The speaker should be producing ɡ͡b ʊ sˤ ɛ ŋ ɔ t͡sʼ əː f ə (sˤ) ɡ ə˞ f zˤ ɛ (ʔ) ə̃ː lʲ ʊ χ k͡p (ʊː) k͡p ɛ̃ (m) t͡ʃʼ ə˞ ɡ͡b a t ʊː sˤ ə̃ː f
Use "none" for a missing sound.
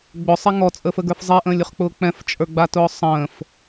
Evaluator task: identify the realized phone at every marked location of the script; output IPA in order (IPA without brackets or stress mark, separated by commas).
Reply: none, ʔ, ʊː, f